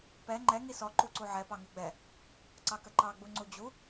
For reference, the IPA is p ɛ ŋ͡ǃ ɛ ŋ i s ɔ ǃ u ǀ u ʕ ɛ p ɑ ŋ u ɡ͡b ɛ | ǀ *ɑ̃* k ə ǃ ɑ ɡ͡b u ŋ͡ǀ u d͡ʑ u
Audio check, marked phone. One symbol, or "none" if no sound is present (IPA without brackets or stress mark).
ɑ